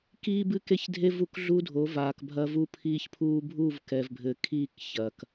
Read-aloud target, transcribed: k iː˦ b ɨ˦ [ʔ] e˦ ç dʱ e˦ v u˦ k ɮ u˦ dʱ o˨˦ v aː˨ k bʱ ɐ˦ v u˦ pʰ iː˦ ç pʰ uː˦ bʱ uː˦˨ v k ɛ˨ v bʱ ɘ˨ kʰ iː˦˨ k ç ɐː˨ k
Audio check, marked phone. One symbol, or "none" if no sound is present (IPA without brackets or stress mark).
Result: k